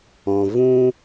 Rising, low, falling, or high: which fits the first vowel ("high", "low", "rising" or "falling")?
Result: low